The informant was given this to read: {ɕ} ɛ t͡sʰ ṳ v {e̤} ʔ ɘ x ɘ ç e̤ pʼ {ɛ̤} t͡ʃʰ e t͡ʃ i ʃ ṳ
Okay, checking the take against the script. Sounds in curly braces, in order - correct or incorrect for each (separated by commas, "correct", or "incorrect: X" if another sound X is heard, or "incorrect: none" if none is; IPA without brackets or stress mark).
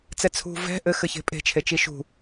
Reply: incorrect: t͡s, incorrect: ɛ̤, incorrect: e̤